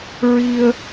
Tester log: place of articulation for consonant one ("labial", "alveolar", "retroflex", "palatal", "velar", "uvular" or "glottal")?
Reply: alveolar